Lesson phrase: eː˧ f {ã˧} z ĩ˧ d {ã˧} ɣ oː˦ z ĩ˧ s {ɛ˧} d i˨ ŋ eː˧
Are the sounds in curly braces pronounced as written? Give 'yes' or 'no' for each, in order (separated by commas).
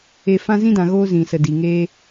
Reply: yes, no, no